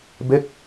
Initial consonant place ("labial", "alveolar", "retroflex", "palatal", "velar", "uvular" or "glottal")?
labial